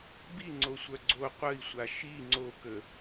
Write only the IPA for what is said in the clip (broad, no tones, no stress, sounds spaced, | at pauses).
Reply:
b i ŋ͡ǀ o sʷ œ ɡ͡ǀ o qʷ ə i̯ sʷ a ʃ i ŋ͡ǀ o k ə